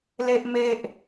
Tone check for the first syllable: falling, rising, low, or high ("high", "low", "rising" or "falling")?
high